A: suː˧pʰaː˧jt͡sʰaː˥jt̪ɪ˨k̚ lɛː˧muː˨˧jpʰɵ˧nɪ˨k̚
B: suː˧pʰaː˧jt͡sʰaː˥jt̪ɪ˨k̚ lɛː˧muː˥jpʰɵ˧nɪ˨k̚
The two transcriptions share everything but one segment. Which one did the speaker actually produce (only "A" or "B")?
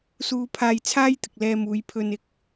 A